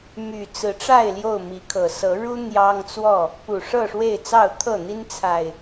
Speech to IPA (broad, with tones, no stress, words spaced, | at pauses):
my˨˩t͡sɹ̩˨˦ʈ͡ʂa˥˨ɪ̯ ljo˥˨ʊ̯mi˨˦kʰɤ˨˩ sɤ˨˦ɻu˦ n̪jɑ˦ŋt͡swɔ˥˨ | pu˨˩ʂɤ˥˨ʂwe˥˨ɪ̯ t͡sɑ˥˨ʊ̯t̪ʰɤ˥˨n̪i˦n t͡sʰa˨˩ɪ̯